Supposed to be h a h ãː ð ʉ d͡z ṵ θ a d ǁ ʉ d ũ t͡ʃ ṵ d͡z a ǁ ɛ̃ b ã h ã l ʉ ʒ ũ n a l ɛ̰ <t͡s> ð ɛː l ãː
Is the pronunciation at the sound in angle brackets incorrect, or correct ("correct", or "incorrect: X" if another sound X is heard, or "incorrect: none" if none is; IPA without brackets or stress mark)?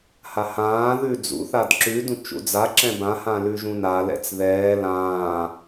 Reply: correct